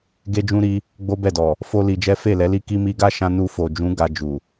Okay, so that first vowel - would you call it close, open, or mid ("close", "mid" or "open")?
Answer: mid